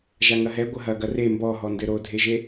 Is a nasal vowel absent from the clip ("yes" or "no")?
yes